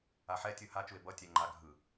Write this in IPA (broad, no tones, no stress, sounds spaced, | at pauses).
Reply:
a ħ ɛ tʲ ɯ h a t͡ʃ u e̯ b ʌ tʲ ɛ ŋ͡ǃ a ɡʱ ɯ